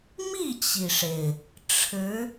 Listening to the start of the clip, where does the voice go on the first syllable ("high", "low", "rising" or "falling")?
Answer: falling